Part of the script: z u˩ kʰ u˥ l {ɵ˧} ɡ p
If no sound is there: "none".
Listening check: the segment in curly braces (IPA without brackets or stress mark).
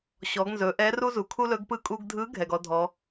ɵ˧˥